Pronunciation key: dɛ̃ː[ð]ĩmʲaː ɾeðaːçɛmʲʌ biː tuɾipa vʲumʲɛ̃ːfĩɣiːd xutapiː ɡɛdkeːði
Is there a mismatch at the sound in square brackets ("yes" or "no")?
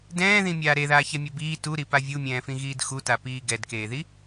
no